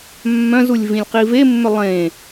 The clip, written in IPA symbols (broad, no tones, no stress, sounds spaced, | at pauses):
mː œ̃ z u lʲ v ĩ lʲ q i v e mː ʏ lˠ ẽ